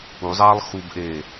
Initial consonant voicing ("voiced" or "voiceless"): voiced